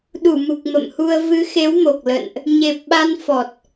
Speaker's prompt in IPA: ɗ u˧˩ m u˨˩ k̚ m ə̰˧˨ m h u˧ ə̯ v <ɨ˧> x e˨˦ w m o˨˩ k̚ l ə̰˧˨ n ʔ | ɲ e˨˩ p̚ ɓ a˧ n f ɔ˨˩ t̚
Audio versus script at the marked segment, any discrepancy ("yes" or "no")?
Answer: yes